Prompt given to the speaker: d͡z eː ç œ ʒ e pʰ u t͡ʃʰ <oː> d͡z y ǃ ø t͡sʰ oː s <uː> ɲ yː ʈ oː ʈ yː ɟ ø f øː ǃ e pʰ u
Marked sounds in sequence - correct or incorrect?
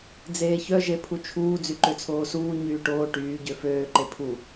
incorrect, correct

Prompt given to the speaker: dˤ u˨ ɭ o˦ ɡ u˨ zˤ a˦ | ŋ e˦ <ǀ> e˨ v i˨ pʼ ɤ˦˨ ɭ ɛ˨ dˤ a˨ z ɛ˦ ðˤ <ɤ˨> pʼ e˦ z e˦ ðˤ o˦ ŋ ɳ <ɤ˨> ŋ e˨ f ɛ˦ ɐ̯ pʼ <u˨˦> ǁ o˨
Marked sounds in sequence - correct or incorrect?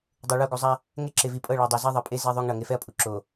incorrect, correct, correct, incorrect

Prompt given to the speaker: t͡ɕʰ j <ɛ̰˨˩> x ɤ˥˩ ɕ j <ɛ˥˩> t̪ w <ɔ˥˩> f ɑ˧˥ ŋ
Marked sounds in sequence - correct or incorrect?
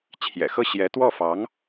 correct, incorrect, correct

